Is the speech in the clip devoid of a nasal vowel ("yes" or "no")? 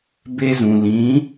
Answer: no